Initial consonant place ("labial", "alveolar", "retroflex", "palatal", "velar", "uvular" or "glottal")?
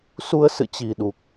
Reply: alveolar